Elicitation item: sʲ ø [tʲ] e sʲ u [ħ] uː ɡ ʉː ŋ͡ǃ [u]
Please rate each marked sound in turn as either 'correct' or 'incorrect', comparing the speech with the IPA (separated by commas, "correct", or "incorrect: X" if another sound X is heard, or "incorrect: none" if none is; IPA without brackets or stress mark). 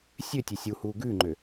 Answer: correct, incorrect: h, incorrect: ø